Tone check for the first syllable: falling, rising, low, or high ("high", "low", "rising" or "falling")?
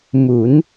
rising